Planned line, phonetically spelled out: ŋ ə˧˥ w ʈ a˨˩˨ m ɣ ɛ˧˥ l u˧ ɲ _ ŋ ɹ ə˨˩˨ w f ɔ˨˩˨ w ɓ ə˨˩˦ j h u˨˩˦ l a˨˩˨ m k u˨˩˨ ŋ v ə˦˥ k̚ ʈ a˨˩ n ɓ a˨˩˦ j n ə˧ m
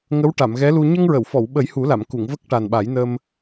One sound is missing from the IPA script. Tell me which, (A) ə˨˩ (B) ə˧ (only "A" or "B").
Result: B